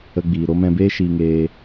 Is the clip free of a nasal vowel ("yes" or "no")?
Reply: no